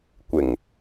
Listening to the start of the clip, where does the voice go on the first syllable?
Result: low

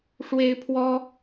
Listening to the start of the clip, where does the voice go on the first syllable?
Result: high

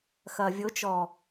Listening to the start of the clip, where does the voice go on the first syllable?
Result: low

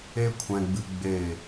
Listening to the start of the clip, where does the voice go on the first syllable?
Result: high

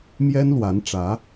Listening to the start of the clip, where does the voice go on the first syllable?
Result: high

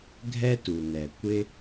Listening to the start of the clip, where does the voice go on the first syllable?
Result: high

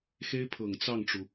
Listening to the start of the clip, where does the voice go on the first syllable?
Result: high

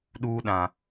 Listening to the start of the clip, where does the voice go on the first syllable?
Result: high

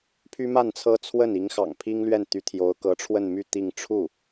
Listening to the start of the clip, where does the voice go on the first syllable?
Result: high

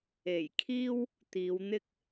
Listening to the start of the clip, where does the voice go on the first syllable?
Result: low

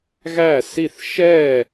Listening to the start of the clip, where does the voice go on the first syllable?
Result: falling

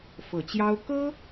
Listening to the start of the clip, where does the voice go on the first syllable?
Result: low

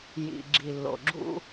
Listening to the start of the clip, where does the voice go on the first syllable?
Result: low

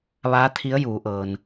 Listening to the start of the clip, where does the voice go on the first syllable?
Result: rising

